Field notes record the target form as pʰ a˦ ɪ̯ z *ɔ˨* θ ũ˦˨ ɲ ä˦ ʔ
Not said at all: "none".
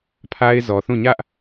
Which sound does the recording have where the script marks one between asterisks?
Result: ɔ˨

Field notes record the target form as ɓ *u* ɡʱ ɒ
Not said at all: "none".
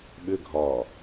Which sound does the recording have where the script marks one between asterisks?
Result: ʏ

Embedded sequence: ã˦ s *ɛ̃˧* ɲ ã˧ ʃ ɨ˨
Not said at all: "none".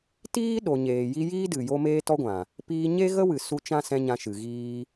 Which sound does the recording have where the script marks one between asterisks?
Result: ɛ̃˧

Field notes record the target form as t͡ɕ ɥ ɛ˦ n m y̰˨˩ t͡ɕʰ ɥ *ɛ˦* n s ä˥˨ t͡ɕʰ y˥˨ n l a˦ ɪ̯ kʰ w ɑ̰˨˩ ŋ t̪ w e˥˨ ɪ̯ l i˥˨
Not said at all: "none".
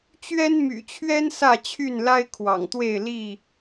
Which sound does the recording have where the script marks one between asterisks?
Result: ɛ˦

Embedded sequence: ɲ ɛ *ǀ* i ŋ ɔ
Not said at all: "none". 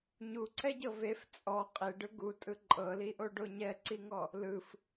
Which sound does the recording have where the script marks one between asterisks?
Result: ǀ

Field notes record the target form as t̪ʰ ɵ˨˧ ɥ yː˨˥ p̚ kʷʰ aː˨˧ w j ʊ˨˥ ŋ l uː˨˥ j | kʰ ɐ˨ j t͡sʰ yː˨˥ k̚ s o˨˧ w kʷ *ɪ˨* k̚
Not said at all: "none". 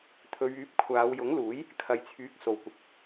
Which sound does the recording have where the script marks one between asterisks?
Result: ɪ˨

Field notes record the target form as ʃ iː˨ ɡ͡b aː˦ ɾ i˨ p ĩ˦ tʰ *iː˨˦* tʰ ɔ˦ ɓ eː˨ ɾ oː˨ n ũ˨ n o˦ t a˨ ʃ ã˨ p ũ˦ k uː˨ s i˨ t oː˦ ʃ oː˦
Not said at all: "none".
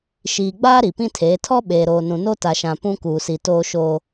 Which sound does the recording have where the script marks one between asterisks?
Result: eː˨˦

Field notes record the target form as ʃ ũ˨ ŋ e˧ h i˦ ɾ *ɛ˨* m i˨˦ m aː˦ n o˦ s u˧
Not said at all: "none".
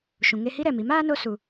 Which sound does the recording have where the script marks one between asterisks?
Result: ɛ˨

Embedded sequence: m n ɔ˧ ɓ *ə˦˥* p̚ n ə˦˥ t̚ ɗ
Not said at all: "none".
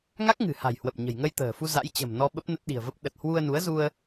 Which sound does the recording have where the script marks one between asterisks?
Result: ə˦˥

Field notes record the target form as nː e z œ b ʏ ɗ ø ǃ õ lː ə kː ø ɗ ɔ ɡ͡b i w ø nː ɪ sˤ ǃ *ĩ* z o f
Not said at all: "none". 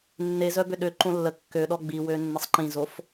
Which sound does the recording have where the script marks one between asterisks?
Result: ĩ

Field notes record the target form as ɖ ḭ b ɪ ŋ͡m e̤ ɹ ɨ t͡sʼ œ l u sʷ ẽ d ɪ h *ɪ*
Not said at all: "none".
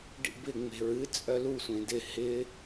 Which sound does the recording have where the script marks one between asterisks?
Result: ɪ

